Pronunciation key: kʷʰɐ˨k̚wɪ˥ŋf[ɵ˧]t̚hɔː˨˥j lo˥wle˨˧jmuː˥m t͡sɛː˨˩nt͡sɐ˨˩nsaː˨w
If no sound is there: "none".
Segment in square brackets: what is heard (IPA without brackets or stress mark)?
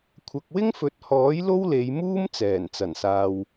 ɵ˨˥